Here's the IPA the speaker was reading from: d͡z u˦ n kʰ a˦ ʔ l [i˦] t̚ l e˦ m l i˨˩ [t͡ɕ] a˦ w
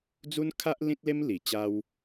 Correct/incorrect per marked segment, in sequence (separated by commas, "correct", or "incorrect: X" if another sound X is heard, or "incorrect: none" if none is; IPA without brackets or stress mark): incorrect: ĩ˦, correct